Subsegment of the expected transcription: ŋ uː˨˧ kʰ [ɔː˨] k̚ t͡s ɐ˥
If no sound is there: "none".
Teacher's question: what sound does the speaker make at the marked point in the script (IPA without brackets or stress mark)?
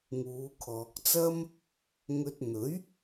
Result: ɔː˨